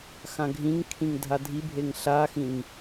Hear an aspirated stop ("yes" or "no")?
yes